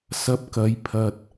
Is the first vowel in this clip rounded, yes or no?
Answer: no